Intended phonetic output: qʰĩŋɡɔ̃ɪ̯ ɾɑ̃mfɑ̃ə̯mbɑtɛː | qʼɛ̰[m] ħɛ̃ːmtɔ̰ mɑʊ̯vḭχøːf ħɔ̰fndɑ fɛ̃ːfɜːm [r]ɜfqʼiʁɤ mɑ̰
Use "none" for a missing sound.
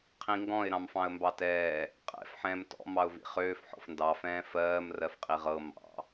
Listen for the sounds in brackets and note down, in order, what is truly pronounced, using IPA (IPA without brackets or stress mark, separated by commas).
f, r